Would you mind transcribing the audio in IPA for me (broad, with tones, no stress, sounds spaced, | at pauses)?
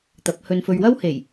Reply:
t̪ ɐ˨˥ p̚ h ɵ˧ n f ɵ˧ ɥ w ɐ˥ w h e˨˩ j